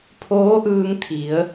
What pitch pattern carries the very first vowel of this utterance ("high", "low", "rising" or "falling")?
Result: rising